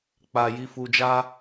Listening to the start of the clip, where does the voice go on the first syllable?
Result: low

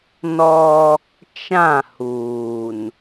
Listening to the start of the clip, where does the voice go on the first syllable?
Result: high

